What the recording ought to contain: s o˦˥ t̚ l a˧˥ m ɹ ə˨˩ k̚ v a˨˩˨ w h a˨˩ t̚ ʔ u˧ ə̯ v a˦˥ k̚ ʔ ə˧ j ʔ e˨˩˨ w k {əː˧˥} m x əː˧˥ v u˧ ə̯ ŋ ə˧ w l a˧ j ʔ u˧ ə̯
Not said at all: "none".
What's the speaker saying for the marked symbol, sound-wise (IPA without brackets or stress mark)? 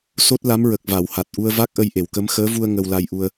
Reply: ə˧˥